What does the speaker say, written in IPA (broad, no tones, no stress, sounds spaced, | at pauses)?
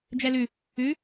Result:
d͡ʒ ɛ l ʉ | ʉ